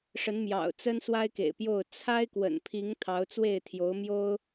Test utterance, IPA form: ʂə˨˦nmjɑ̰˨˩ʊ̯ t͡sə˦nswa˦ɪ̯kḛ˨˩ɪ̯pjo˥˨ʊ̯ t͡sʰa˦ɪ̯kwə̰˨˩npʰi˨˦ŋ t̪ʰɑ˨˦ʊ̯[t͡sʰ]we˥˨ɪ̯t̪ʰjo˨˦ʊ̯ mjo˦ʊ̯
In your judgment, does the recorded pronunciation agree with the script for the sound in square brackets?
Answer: no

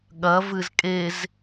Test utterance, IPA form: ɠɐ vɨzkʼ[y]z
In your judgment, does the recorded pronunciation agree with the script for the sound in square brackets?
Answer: no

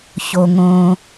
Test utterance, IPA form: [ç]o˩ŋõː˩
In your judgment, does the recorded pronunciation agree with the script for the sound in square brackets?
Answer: yes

